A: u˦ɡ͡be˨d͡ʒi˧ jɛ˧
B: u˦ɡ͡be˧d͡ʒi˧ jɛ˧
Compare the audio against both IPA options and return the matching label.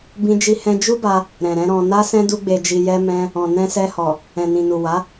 B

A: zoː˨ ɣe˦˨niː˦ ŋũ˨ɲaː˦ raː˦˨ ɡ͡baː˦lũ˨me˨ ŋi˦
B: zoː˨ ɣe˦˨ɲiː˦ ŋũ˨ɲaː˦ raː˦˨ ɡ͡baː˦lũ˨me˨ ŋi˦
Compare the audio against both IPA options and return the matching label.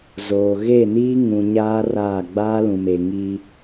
A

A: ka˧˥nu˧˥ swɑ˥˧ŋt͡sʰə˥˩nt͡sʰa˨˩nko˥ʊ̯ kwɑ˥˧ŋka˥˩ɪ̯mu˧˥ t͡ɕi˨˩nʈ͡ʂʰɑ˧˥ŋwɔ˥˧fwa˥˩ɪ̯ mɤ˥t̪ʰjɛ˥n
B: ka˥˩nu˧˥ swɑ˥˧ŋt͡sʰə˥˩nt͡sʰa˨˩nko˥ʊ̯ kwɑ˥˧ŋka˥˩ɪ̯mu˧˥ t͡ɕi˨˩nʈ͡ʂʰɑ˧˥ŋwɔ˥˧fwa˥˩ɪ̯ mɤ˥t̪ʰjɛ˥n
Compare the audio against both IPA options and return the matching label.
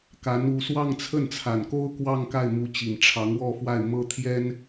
A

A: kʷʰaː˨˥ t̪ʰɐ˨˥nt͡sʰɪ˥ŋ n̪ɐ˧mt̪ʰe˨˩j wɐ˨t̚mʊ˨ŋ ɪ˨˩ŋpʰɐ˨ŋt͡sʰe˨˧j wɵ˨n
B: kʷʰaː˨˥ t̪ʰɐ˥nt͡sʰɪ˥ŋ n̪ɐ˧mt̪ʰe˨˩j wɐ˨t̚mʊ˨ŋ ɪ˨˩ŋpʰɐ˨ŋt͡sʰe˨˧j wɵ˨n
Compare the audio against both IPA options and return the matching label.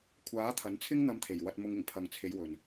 A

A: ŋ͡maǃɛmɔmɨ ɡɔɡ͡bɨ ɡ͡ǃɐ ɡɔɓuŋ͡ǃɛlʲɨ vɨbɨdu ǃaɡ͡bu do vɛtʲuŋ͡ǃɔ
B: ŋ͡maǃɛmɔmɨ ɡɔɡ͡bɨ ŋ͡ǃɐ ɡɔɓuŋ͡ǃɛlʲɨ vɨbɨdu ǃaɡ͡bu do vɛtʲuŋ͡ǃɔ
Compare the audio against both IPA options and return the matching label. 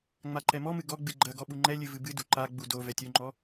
A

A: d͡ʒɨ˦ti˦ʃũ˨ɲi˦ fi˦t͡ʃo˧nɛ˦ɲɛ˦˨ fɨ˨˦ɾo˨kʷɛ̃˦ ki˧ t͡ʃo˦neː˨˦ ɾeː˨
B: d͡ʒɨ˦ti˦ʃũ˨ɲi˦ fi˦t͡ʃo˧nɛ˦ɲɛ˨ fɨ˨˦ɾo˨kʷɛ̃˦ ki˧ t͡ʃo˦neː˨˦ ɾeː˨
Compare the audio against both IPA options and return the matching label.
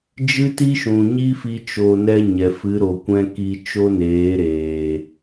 B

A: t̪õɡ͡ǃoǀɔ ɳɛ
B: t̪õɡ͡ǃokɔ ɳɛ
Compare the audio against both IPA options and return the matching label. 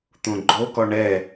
B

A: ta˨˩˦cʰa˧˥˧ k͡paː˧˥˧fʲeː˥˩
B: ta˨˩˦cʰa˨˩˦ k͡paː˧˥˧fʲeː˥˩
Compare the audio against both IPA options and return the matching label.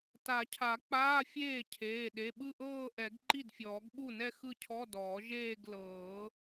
B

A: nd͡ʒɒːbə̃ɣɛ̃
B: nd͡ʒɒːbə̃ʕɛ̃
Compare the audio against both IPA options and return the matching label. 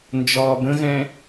A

